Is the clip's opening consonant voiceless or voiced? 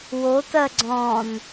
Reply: voiced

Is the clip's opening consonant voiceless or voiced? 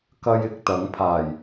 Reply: voiceless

